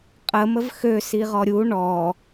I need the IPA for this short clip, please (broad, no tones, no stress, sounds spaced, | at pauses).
qʼ ə m ə v x ø s i ʁ ɔ ɾʲ u ɳ ɔ